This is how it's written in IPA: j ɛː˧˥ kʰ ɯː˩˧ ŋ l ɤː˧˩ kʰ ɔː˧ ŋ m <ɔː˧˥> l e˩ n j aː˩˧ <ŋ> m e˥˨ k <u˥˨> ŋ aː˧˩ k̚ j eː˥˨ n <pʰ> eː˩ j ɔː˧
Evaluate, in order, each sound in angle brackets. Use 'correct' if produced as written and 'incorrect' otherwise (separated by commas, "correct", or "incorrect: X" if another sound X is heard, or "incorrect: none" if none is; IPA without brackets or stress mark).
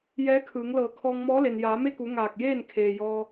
correct, incorrect: none, incorrect: u˩˧, incorrect: kʰ